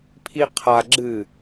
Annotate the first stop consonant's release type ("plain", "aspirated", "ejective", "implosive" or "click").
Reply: aspirated